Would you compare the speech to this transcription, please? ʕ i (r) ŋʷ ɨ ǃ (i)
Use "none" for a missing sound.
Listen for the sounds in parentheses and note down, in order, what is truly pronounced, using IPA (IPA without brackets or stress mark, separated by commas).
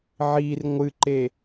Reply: r, e